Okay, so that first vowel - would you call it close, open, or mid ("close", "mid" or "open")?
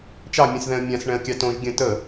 open